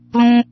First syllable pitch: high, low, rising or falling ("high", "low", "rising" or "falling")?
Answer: high